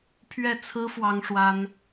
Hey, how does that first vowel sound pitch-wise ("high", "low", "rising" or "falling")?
falling